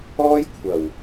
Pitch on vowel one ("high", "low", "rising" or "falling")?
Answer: high